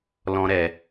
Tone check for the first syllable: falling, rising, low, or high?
high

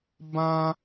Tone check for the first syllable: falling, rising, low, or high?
high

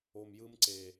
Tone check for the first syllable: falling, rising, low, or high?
low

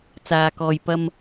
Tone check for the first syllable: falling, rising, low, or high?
low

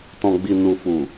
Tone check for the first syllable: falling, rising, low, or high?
low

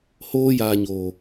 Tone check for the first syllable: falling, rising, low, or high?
high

